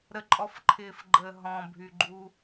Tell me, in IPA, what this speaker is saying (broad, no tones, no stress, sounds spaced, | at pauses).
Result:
ɾ ə ǃʼ ɔ f ǃʰ ɪː f ɡ͡ǃ əː ɦ ɔ̃ bʱ y ɡ͡ǃ uː